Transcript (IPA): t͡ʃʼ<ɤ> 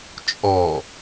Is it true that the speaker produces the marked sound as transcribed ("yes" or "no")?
no